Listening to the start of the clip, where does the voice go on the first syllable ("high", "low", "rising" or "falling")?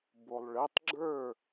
low